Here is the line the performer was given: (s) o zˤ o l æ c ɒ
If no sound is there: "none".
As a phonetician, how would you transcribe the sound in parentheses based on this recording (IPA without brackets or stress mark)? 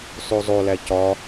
s